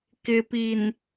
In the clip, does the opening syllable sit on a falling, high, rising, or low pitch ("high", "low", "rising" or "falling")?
low